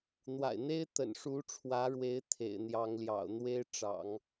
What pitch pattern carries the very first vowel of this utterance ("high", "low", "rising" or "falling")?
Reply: low